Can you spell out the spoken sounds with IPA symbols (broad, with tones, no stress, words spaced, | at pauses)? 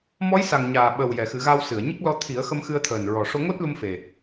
mɔ˧˥jsa˨˩ŋ ɲaː˨˩ɓə˨˩wjɛ˨˩˨ xɨ˨˩˦ɣa˧wsɨ˨˩˨ə̯ɲə˦˥k̚ lɔ˧t̪ʰi˨˩˦ə̯xə˧m xɨ˧ə̯t̪ʰəː˨˩nɹɔ˨˩ ʂo˧ŋo˦˥t̚lu˧m fe˨˩